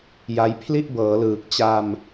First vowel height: low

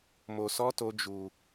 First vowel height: mid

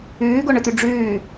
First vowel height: high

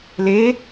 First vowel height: mid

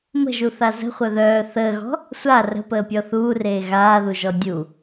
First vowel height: mid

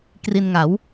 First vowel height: high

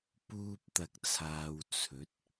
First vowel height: high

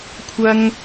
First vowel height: low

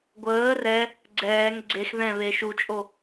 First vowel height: mid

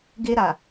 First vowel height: mid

